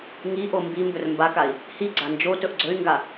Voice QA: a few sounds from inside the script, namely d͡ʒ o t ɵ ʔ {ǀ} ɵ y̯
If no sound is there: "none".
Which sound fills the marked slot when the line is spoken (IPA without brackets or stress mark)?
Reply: ɡ͡ǀ